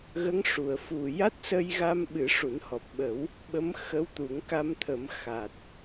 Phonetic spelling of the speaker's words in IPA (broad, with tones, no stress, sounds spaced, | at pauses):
ɣ ə˧˥ ŋ ʂ u˨˩˨ ə̯ f u˨˩ j a˦˥ t̚ s ə˧ j ɣ a˧ m ɓ ɨ˨˩˦ ʂ u˨˩˦ n h ɔ˨˩ p̚ ɓ ə˨˩˦ w | ɓ ə˧˥ m x ə˧˥ w t̪ u˨˩˦ ŋ k a˧ m t̪ʰ ə˨˩˦ m x a˨˩ t̚